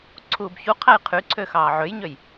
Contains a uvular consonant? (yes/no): yes